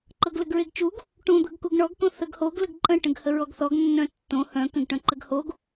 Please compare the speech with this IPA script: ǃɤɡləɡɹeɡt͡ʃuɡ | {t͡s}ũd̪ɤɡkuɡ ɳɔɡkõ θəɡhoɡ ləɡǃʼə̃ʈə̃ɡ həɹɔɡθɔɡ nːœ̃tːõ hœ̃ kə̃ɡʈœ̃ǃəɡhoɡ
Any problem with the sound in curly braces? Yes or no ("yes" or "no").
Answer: yes